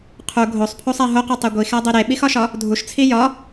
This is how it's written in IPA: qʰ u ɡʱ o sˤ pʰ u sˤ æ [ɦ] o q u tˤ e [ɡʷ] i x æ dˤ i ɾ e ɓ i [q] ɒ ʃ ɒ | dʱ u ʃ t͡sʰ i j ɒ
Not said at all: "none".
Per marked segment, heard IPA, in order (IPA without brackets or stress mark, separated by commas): ɦ, ɡʷ, x